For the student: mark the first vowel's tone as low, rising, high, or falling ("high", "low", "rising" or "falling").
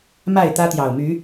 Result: falling